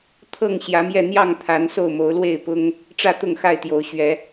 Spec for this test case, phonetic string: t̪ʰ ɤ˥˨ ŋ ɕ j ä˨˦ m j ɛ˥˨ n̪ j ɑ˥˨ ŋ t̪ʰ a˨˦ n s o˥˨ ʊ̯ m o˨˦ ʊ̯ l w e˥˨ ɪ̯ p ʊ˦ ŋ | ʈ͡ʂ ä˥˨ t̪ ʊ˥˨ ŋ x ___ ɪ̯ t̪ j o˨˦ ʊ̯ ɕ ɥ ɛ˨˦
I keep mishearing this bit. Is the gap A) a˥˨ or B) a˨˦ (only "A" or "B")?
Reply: A